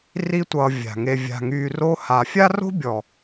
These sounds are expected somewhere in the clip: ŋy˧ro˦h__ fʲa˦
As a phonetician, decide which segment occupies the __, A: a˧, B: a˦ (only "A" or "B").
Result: A